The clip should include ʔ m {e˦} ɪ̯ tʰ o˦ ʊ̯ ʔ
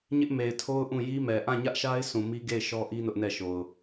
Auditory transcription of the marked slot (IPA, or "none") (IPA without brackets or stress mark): e˨